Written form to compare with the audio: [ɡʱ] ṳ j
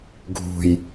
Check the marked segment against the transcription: correct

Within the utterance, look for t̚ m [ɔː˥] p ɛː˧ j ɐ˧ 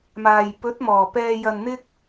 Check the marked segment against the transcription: incorrect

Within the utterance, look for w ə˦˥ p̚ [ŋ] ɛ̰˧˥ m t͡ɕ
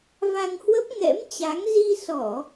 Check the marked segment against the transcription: correct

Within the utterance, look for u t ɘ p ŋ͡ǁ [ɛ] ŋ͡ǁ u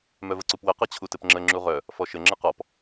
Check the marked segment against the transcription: incorrect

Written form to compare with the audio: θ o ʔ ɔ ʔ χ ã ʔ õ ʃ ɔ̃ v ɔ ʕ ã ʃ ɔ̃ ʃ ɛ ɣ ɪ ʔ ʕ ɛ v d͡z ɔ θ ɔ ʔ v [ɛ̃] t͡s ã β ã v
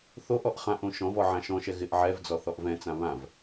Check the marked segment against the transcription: correct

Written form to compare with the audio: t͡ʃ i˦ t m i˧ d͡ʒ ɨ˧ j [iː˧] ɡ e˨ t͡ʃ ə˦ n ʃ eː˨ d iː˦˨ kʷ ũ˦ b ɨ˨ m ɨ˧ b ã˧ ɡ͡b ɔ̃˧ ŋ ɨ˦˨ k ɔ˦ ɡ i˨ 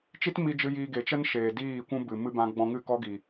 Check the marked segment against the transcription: correct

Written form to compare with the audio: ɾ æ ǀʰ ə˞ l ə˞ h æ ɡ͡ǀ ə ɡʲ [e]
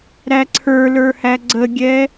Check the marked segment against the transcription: incorrect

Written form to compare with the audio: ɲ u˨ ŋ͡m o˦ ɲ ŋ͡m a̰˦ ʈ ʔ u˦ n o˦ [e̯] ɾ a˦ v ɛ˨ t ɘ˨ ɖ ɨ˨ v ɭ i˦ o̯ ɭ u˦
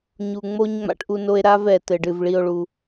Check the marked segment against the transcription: correct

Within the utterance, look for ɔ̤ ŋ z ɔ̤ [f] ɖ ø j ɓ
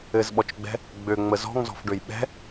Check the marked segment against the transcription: correct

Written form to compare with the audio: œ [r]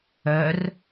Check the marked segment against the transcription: correct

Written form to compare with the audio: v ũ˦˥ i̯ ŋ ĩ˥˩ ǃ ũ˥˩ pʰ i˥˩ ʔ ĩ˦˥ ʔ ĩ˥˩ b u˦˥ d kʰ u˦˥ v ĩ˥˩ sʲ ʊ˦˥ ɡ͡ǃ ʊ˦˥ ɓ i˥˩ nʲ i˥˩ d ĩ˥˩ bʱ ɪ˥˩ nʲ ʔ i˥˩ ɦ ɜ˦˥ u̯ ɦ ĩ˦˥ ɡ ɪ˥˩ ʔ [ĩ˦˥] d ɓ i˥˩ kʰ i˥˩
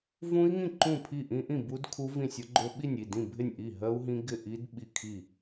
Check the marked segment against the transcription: incorrect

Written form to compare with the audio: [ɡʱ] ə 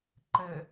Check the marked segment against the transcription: incorrect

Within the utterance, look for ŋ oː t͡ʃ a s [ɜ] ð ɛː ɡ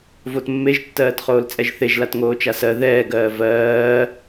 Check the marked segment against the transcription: correct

